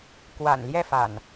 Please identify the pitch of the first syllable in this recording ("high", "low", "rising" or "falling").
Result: low